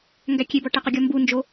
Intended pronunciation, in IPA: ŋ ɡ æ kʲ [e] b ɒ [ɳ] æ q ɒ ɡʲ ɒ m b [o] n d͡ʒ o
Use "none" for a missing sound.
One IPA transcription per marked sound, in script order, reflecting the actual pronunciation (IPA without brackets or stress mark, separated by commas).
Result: e, ʈ, u